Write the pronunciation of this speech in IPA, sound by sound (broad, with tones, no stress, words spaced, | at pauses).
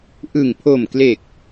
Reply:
ʔɯ˨˩ŋpʰo˨˩mkle˨˩k̚